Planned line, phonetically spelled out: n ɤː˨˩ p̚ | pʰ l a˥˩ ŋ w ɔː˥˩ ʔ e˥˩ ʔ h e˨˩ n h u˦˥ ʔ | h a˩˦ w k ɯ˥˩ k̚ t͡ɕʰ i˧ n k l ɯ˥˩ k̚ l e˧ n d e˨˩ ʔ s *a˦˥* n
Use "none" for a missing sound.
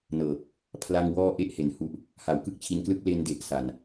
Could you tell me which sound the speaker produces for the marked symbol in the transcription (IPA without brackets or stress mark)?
a˨˩